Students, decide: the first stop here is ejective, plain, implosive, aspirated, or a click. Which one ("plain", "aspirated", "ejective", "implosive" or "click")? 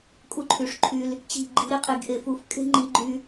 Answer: ejective